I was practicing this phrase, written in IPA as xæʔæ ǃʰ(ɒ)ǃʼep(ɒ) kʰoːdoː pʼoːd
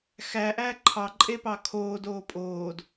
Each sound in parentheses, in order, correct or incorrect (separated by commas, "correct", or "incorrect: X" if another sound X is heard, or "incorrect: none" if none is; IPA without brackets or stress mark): incorrect: ɑ, incorrect: ɑ